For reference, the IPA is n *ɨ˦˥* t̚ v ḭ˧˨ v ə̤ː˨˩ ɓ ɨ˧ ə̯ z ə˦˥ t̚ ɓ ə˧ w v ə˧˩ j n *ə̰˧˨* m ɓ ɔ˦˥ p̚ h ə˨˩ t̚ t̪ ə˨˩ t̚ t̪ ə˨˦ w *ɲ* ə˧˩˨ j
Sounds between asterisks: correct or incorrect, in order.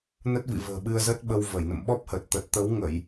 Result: incorrect: ə˦˥, correct, incorrect: ŋ

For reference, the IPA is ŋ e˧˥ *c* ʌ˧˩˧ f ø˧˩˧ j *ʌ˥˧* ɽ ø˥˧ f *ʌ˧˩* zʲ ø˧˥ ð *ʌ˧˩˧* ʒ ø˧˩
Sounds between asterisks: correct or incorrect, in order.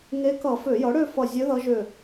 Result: incorrect: k, incorrect: ʌ˩˥, correct, incorrect: ʌ˧˥

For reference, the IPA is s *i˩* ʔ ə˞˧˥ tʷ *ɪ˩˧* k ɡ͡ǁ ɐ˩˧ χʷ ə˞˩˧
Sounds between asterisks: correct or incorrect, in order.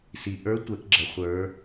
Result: correct, incorrect: ɛ˩˧

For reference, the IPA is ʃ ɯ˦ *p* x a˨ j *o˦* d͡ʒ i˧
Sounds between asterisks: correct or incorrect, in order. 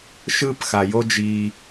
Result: correct, correct

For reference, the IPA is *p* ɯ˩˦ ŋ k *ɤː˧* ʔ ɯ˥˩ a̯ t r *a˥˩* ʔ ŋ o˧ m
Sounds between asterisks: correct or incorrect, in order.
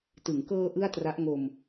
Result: incorrect: t, correct, incorrect: a˦˥

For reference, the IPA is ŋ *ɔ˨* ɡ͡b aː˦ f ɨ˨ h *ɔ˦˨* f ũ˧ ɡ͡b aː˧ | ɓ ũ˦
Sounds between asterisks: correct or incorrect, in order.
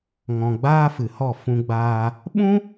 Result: incorrect: ɔ̃˨, correct

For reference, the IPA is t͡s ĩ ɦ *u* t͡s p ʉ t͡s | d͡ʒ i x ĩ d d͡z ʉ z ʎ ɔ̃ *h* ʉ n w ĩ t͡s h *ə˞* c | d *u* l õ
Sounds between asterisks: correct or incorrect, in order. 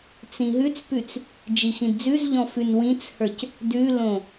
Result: incorrect: ʉ, incorrect: f, correct, incorrect: ʉ

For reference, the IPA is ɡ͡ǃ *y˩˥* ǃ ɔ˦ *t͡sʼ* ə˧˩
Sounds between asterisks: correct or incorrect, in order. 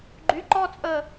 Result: correct, correct

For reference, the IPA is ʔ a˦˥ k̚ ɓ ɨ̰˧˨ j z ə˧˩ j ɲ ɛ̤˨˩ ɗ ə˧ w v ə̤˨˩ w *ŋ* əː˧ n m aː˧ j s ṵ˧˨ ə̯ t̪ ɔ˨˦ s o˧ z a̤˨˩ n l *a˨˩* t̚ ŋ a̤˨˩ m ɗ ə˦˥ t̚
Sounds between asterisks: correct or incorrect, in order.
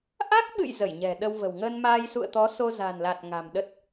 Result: correct, correct

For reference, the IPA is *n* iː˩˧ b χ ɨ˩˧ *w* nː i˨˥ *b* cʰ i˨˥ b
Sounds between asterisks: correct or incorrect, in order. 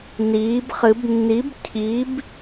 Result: correct, incorrect: b, correct

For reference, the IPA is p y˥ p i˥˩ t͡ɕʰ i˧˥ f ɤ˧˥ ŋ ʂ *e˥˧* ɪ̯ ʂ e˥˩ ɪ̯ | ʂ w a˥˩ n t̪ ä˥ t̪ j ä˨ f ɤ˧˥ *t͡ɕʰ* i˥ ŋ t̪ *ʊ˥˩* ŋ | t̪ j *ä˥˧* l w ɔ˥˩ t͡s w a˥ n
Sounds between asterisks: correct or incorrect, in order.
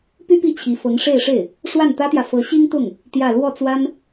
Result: correct, incorrect: ɕ, correct, correct

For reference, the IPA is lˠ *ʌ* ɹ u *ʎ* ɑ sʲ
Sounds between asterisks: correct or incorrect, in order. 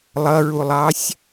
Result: correct, incorrect: lˠ

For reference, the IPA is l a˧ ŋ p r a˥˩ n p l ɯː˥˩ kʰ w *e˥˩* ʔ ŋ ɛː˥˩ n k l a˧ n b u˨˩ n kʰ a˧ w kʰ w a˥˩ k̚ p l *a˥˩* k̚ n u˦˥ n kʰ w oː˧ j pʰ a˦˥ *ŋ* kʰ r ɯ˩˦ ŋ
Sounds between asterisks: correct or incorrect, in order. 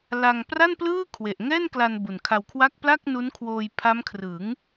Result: incorrect: e˨˩, correct, incorrect: m

